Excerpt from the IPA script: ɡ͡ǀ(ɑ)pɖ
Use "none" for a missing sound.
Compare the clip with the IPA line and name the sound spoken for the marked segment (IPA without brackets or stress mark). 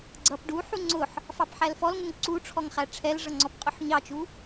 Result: ʌ